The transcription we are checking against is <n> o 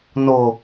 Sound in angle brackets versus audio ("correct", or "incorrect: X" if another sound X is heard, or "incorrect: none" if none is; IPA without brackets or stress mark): correct